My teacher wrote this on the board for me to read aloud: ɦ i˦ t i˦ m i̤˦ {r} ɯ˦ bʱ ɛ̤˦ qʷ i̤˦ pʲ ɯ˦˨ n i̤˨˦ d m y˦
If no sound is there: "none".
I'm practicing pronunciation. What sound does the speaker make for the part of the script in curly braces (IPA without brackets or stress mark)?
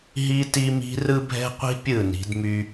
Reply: r